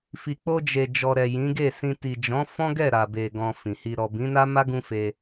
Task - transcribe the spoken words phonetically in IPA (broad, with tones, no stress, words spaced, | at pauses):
fi˨k͡po˧ d͡ʒe˨ d͡ʒɔ˨ɾɛ˨ jĩ˨˦ɡe˦˨sĩ˧ ti˨d͡ʒɔ̃˨˦ fɔ̃˦ɡɛ˦˨ ɾa˨be˨ ɡɔ̃˧fĩ˨hi˧ ɾɔ˨bĩ˨˦na˦ ma˦ɡũ˧ fe˧